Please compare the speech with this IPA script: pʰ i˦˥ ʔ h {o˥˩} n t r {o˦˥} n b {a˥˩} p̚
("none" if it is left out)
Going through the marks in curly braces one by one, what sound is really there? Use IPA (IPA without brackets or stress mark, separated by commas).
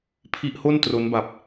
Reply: o˥˩, o˦˥, a˨˩